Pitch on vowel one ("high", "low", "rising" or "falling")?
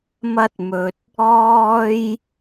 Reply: high